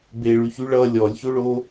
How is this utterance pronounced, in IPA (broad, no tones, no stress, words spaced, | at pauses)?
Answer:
beɭyçy ɭʌ lʲɔlʲçoɭo